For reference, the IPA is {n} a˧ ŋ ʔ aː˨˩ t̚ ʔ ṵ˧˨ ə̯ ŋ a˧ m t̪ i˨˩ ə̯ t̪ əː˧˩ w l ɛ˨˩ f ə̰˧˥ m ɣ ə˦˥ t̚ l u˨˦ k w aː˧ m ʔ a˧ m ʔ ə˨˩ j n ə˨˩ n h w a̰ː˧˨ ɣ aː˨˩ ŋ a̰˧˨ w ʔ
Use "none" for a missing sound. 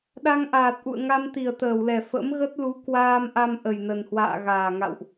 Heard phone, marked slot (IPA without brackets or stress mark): ɗ